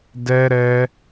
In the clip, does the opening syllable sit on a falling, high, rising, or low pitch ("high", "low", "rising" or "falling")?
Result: high